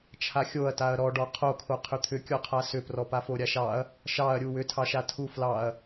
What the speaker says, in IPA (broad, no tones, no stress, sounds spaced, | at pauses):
t͡ʃʰ a xʲ o ɐ̯ t a ɐ̯ ɾ ɔ ɖ ɔ qʰ o kʰ o qʰ ʏ t̪ʰ ʏ kʲ ɔ qʰ a s ʏ p r ɔ p a f o ɾʲ a ʃ ɑ ɐ̯ | ʃ ɑ ɐ̯ ɾʲ u w ʏ tʰ ɑ ʃ a tʰ u f l ɑ ɐ̯